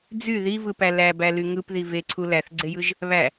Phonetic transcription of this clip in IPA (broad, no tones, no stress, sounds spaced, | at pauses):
d͡z y ð i v ɯ p æ l æ b æ l y ŋ ɯ p ð i v e ǀʰ u l æ θ ɡ͡ǀ e j ɯ ʒ | β æ